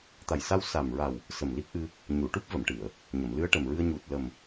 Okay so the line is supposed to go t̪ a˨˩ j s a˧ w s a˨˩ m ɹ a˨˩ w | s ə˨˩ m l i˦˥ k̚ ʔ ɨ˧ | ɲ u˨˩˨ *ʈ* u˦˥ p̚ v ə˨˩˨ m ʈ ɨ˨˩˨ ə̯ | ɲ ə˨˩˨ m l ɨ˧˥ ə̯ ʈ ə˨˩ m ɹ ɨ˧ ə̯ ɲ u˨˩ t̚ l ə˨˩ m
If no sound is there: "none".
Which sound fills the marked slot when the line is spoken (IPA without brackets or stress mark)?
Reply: ʈ